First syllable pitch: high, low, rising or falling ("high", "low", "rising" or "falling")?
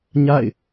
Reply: falling